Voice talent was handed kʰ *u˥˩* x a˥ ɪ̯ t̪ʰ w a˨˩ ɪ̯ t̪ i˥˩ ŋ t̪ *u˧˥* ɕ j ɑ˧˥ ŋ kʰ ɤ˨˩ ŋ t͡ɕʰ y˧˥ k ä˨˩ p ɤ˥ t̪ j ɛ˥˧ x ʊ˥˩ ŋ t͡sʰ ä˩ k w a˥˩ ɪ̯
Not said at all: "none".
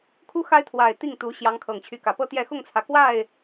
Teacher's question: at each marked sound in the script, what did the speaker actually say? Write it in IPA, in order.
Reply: u˥, u˧˥

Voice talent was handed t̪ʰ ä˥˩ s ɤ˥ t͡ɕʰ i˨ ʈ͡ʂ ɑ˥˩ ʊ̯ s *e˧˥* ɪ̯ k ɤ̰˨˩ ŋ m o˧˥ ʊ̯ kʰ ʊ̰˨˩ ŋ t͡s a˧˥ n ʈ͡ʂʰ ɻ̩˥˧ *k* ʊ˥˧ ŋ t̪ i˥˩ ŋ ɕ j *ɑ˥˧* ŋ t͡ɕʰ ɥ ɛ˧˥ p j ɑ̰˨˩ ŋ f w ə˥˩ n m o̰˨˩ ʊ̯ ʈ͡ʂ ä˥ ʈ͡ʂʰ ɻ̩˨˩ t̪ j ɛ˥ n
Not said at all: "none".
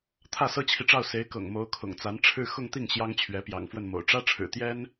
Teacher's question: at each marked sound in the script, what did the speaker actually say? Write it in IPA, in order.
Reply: e˧˥, x, ɑ˥

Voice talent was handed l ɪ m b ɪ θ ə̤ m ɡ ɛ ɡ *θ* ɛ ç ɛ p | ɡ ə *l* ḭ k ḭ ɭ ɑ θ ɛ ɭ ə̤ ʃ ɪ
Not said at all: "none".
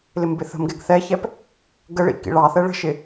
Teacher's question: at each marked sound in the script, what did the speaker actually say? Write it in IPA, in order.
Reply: θ, ɭ

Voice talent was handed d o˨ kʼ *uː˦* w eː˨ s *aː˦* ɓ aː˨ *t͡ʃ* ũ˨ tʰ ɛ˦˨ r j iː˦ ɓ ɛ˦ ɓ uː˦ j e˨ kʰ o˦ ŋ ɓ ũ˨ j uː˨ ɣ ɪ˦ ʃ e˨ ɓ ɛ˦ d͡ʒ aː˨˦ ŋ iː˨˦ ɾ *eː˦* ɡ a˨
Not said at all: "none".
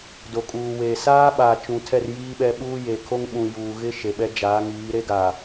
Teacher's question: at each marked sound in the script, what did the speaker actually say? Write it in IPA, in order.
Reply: uː˨, aː˦, t͡ʃ, e˦

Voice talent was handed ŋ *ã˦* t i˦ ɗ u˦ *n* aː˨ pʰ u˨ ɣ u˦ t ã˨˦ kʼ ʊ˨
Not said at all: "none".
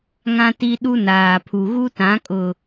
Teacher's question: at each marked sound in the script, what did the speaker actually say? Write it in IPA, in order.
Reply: ã˦, n

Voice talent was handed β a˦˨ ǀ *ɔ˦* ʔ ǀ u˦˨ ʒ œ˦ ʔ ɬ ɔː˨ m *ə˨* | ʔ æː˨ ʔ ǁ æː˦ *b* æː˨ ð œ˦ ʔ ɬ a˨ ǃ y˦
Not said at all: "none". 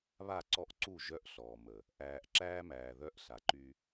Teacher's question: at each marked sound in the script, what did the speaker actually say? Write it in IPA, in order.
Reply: ɔ˦, ə˨, m

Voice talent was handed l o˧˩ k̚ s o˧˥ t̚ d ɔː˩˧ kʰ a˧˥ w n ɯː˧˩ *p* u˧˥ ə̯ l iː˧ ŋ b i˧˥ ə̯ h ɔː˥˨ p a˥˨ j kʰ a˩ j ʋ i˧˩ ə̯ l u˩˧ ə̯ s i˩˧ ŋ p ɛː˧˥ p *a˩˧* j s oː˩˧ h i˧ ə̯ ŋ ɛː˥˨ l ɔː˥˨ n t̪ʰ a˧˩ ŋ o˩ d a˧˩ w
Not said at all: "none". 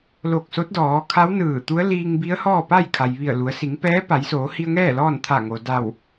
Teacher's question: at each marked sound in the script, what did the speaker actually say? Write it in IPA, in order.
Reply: t̪, a˩˧

